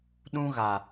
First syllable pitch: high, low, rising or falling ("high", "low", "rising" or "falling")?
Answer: high